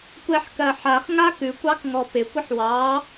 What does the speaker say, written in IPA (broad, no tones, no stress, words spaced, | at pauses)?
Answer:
kʷɛħkɜħaχ ŋakʉkʷ ɑkŋɔpɪ kʷɪħwɑ